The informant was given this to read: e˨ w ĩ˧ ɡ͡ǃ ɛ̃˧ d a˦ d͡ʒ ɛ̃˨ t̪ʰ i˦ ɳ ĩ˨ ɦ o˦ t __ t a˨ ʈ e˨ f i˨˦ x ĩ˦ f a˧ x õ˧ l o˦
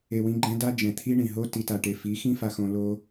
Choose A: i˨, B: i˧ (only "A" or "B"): A